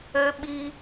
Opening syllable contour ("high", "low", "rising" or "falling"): high